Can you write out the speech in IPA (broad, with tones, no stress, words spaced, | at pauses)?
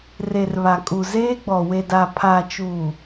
re˨rβa˨ kʼu˨ zeː˦ɡ͡bɔ˨ we˨da˨ pʰa˨t͡ʃuː˨